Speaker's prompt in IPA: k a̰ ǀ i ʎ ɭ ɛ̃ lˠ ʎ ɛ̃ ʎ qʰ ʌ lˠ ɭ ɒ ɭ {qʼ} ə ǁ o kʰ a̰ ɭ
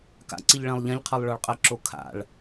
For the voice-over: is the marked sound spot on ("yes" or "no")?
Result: yes